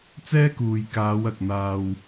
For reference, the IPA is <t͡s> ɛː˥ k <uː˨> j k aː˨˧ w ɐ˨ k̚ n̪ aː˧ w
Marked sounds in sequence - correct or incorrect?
correct, correct

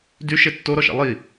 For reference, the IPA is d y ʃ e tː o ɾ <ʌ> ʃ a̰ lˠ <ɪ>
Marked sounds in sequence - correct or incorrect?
incorrect: ɔ, incorrect: i

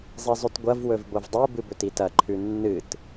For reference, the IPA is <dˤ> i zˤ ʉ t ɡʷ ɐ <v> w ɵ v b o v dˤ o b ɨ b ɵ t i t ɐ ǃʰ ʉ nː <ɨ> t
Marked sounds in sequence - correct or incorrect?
incorrect: zˤ, correct, correct

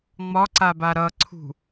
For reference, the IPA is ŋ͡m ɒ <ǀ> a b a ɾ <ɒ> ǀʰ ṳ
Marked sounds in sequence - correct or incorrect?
correct, incorrect: ʌ

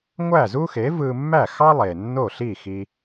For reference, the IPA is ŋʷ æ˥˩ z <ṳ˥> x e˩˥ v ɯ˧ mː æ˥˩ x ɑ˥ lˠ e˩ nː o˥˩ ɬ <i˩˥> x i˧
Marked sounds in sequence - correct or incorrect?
incorrect: u˥, incorrect: i˥˩

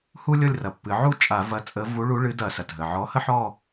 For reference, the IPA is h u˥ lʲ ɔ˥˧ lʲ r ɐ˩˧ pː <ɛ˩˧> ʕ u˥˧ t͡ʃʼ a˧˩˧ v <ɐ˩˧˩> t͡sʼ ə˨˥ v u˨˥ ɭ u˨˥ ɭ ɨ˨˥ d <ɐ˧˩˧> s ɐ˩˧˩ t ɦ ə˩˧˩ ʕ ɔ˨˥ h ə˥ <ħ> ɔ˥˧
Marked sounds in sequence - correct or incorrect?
incorrect: ɨ˩˧, incorrect: ɐ˨˥, correct, correct

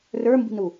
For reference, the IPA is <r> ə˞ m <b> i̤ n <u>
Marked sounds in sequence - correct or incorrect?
correct, correct, correct

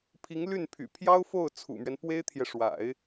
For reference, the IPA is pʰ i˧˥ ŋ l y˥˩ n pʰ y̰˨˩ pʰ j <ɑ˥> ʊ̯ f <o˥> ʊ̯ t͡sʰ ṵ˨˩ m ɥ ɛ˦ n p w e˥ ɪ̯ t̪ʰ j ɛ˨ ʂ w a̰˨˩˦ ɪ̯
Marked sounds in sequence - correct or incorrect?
correct, incorrect: o˥˩

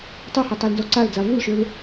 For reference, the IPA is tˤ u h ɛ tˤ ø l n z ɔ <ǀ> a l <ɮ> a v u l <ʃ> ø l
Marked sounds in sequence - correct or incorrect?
correct, incorrect: d͡z, correct

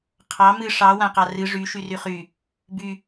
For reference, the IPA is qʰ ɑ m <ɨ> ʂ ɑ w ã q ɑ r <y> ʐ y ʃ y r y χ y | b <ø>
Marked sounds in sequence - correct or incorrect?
correct, incorrect: ɨ, incorrect: y

